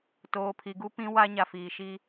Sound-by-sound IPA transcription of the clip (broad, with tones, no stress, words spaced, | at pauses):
toː˨pʰi˨ɡu˦pĩ˦ wa˦ ɲa˨fiː˨ʃi˦